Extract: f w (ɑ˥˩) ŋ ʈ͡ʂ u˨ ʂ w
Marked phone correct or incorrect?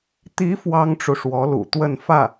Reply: incorrect